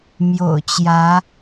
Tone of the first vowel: low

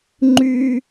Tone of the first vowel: high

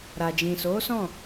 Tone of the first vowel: low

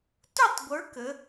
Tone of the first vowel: falling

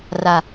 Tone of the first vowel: low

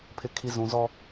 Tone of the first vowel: low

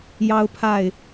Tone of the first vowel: high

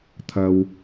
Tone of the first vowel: low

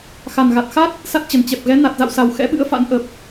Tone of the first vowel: low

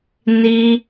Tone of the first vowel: high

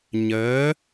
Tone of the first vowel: rising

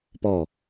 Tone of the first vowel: falling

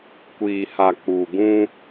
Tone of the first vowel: low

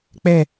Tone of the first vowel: falling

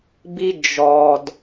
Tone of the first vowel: high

